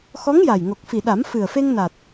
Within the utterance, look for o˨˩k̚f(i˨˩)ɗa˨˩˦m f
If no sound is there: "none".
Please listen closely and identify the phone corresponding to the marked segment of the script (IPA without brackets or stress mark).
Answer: i˨˩